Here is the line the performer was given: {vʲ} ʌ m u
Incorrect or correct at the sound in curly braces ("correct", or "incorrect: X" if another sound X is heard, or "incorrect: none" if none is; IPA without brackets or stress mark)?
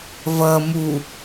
incorrect: v